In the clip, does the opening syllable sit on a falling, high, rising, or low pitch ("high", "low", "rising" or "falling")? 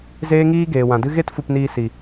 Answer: high